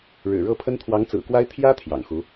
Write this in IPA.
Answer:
ɻ ɻ̩˨˩ ɻ ɤ˥˩ pʰ ə˥ n t̪ʰ w ɑ˧˥ ŋ t͡s ɹ̩˨˩ k w a˥ ɪ̯ t̪ʰ j ä˥ t̪ʰ j ɑ̰˨˩ ŋ x u˧˥

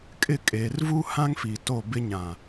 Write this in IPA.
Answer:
kʼ ɪ˦˨ kʼ e˨ r v u˦ h ã˦ ŋ f i˨ t o˦˨ b ɪ˦ ɲ ã˨

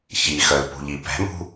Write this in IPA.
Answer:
ç i x œ l p ṳ ʎ i p ɛ̤ m ṳ

